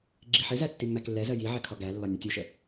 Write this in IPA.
ɡ͡ǁ i ħ ɪ z æ tː i mː æ k lː ɛ z ɜ j i ʕ ɛ kʰ ɒ ɡ æ lː ɒ nʲ ə tʲ u ʃ ə

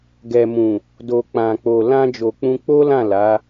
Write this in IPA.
ɡ ɛ˨ m ũ˨ | d o˨ k͡p ã˨ k͡p o˨ l ã˧ d͡ʒ o˨ k͡p ũ˧ k͡p o˦ l ã˦˨ l a˨˦

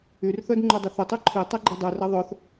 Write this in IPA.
y r θ œ d ŋ͡ǃ u dˤ ʏ θ ʏ tˤ y ǃʰ i tˤ ɛ ɡ͡ǃ i dˤ y r ɐ ðˤ œ θ

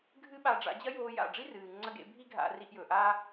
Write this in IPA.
ɡʱ ɨ˦ ɓ a˧ ɖ͡ʐ a̰˧ d͡ʑ ɐ˦ j oː˧ j a̰˦˨ ɖ͡ʐ i˦ r ɨː˨ ŋ͡ǀ ɐ˧ ɡ ḛ˧ bʱ i˦ ɡʱ a̰˧ r i˧ ʔ j ɵ˨ ʔ a˧

